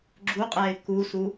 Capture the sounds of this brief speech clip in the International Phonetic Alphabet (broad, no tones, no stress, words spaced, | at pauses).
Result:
ɡ͡ǁuqʼɛɪ̯ kusu